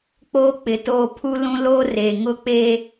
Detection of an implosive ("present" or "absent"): absent